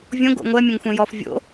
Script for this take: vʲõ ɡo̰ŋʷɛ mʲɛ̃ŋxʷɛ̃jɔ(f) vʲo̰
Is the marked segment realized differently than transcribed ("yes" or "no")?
no